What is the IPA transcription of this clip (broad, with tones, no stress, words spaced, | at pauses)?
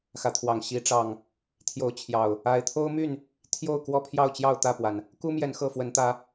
xä˨˦t̪ʰwɑ˨˩ŋ ɕi˨˦ ʈ͡ʂɑ˨˩ŋ | t̪ʰjo˨˦ʊ̯t͡ɕʰjɑ˨˩ʊ̯ | a˨˦ɪ̯t̪ʰo˦ʊ̯my˥˨n | t̪ʰjo˥˨ʊ̯kwɔ˥˨pʰjɑ˥˨ʊ̯t͡ɕjɑ˥˨ʊ̯ t̪ä˥˨pwa˩n | ku˦mjɛ˨˦n xɤ˥˨fwə˨˦nt̪ä˨˦